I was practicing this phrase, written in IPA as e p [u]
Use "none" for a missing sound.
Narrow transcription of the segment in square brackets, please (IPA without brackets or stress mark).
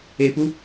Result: u